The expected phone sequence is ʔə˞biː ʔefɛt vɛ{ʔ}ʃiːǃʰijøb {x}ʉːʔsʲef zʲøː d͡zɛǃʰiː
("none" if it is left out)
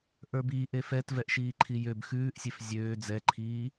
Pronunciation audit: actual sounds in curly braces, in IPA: ʔ, x

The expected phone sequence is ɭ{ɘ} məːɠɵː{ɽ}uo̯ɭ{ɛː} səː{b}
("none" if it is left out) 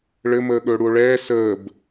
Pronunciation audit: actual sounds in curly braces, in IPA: ɘ, ɽ, ɛː, b

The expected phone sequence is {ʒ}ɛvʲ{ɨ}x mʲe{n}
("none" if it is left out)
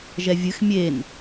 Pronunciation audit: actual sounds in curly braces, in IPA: ʒ, ɨ, n

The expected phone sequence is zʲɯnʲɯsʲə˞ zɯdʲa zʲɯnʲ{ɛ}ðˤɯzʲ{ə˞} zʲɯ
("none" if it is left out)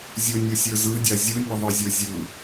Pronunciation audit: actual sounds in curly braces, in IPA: ə, ə˞

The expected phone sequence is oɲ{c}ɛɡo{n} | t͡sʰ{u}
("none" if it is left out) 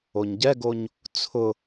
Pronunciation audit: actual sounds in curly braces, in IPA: ɟ, ɲ, ʊ

